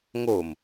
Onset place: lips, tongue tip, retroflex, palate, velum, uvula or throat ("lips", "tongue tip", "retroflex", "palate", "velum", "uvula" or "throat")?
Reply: velum